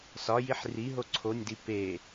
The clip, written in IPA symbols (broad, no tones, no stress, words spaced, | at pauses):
sɒjiħ riɦo ǀʰonʲdi pe